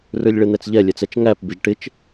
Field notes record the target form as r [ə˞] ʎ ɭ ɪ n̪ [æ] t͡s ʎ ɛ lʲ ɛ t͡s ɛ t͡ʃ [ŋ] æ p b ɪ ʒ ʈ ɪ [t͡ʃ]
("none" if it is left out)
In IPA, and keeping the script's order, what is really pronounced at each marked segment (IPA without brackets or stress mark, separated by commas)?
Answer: ə˞, ɛ, ŋ, t͡ʃ